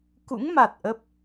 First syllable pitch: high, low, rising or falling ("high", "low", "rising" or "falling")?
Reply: rising